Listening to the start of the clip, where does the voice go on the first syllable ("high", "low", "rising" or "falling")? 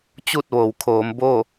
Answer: falling